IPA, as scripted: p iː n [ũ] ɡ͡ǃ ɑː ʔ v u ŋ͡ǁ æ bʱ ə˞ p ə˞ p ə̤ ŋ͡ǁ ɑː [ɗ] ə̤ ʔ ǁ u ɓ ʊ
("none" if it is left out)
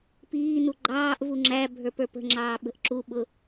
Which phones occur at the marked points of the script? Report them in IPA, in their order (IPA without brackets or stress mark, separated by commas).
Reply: u, ɓ